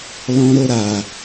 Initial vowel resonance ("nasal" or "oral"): nasal